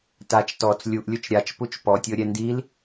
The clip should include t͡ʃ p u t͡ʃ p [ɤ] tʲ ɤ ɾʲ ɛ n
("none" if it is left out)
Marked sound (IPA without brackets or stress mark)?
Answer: ɔ